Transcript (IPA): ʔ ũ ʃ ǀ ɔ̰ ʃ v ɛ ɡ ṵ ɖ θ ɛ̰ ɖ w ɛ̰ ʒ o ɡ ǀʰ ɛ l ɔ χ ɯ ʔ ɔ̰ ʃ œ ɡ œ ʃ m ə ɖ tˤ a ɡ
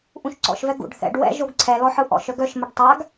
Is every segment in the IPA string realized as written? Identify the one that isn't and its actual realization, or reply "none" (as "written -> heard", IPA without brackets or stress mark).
χ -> ħ